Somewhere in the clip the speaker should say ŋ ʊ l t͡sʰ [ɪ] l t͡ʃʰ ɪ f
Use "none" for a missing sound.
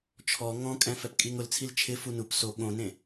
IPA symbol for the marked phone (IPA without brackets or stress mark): i